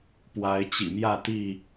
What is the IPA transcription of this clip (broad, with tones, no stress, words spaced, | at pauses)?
pwa˨˦ɪ̯ t͡ɕḭ˨˩mjä˥˨ t̪i˥˨